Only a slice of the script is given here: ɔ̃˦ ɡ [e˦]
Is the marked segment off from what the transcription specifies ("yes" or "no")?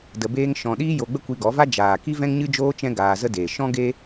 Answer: no